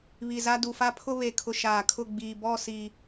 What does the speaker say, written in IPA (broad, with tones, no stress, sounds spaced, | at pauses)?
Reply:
β i˨ z a˦ d u˨ f a˦ pʰ ʊ˦ β e˨ kʰ ʊ˨ ʃ aː˨ kʰ ʊ˦˨ ɡ͡b iː˨ b ɔ˦˨ s iː˨